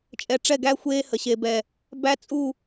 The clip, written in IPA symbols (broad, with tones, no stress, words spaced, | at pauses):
t͡ʃʼɛ˨ʈ͡ʂɛ˦˨ɡæ˦ xʷeː˦hə˨ɕe˨bɛ˨ | bæ˦t͡sʼu˦˨